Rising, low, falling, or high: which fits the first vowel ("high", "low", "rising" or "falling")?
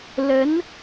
rising